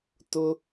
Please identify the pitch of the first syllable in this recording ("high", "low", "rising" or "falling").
high